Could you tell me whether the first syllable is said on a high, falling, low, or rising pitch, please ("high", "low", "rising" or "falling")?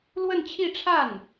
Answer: falling